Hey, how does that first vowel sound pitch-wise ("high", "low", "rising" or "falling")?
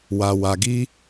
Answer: low